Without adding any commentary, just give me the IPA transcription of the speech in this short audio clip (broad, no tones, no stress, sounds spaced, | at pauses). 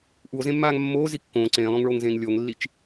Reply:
ʔ u o̯ z ẽ mː aː ŋ mː oː z i kː õː ǀ ẽː lˠ õ ŋ ɭ oː ŋ z ẽː ŋ lʲ o ŋ lː i t͡ʃ